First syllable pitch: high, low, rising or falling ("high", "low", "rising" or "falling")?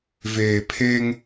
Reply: low